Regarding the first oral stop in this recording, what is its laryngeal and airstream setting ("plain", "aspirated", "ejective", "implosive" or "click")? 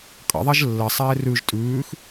ejective